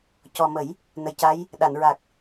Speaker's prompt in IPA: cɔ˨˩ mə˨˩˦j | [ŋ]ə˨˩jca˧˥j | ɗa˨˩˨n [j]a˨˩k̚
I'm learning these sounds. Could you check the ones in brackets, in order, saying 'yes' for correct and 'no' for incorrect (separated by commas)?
no, no